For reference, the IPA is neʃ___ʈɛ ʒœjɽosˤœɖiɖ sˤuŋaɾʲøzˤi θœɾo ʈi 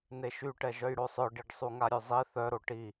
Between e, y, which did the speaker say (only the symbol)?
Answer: y